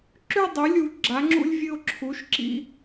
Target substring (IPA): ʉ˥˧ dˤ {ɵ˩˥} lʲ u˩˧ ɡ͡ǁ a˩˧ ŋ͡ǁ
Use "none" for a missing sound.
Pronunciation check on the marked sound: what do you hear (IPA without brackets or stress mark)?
ɵ˩˥